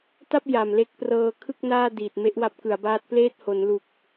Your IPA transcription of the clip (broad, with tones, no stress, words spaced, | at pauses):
ta˥˩p̚ ja˨˩mle˦˥k̚prɤː˧kʰɯ˥˩k̚ naː˥˩diː˨˩t̚me˦˥ʔwa˦˥p̚ kɯ˩˦a̯ baː˦˥t̚pleː˥˩t̚ ho˩˦nlu˨˩k̚